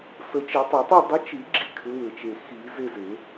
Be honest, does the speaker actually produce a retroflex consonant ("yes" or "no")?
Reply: no